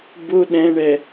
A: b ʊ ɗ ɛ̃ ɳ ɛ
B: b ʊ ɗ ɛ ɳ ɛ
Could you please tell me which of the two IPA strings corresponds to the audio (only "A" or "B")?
A